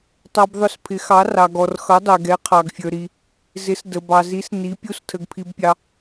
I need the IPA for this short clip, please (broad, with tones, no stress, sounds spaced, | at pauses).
tˤ ɑ˧ b ðˤ ʊ˧˥ s pʰ ɪ˧˥ x ɑ˧˥ r ɑ˧ ɡ ɔ˧ r x ʌ˧˥ dˤ ɛ˧ ɡ ɛ˧˥ qʰ ɑ˧ ɡ fʲ ə˞˧ ɾ i˧ | z ɪ˧˥ s d ə˧ b ɑ˧ z i˧˥ s n i˧˥ pʲ u˧˥ s tʰ ə˧ ɡ pʰ i˧ b pʲ ɑ˧